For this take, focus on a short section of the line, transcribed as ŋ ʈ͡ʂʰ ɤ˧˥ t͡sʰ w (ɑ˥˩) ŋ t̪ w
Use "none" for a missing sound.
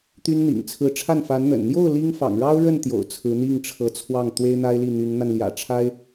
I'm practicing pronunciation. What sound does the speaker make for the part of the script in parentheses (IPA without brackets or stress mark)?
ɑ˥˩